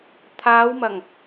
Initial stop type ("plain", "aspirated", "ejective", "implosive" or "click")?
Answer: aspirated